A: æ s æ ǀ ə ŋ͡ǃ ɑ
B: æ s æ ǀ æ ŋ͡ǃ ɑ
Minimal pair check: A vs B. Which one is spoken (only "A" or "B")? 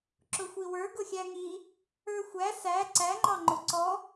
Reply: B